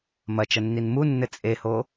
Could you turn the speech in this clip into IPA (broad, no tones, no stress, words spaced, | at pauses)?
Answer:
mɐt͡ʃɐnːin munːɘ t͡sʼeho